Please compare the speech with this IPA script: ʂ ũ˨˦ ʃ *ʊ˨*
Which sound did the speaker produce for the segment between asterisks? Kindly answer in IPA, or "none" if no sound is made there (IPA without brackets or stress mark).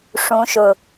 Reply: ʊ˨